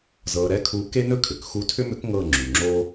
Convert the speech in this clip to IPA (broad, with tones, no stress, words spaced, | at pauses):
zɤ˧ ɾɛ˧˥kʰu˧ ke˥nɵ˥ kʰʏ˩kxu˧˥tʰʏ˥mʏ˧˥k ŋɤ˥˧ŋ͡ǁy˩ŋ͡ǁo˥